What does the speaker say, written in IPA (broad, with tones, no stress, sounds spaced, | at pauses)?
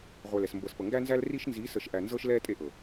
ʁʷ ɛ˨ l ɛ˨ s m b ɤ˨ s p ɤ˨ ŋ ɡ æ˦ n z æ˦ l r i˦ ʃ n z i˨˦ s ə˨ ʃ ʔ æ˨ n z ɤ˦ ʃ l ɛː˦ tʼ e˦ ʔ ɤ˨